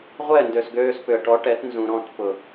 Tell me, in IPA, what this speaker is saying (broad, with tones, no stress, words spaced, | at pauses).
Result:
ʁʷɛ˦˨ndø˨s ɡøː˧spʏ˨ə̯ʈɔ˨˦ʈɛ˨˦t nzũ˨ɾɔ̃˦˨tpʊ˨